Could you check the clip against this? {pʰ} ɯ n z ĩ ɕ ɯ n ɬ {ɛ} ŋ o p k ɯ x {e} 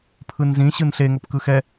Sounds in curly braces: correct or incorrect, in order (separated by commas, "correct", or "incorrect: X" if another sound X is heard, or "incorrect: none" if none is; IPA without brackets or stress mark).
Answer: correct, incorrect: e, incorrect: ɛ